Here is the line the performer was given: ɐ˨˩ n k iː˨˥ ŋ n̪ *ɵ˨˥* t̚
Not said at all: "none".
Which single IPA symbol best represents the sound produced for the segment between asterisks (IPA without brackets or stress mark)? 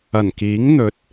ɵ˨˥